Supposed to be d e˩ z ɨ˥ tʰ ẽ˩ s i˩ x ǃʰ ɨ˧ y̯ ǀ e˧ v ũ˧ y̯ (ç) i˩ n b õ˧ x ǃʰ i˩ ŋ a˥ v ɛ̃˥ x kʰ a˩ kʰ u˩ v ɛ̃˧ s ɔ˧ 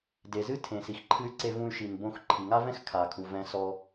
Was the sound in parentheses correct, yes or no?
no